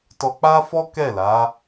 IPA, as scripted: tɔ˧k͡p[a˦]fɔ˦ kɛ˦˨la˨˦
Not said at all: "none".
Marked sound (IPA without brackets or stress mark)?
a˦